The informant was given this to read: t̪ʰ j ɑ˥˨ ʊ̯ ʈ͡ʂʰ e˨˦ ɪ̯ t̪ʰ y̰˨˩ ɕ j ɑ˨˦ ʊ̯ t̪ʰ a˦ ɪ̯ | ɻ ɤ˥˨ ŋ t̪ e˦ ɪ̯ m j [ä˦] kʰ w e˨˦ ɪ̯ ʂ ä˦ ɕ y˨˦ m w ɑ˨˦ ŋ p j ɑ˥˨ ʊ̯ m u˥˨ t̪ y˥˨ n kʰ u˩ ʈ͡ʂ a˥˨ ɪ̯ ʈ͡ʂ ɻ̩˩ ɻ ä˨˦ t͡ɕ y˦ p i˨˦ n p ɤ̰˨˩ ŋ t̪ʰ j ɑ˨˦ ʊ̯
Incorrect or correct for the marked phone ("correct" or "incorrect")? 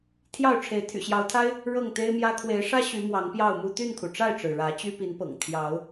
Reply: correct